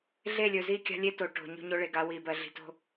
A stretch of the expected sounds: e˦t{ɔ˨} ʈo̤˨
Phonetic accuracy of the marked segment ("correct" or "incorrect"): incorrect